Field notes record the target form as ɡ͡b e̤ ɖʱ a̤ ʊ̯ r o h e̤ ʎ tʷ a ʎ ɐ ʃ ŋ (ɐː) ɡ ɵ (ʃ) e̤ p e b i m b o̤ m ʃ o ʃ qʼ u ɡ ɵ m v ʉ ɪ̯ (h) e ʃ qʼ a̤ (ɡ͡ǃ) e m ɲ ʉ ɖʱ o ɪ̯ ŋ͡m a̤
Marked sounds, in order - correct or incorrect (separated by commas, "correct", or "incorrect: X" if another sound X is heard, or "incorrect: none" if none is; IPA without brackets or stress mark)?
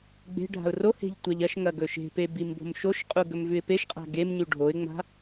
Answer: incorrect: ɐ, correct, incorrect: p, incorrect: ɡ